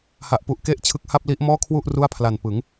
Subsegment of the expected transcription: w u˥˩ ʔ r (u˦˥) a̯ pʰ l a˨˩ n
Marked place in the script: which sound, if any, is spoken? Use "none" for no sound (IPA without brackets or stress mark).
u˥˩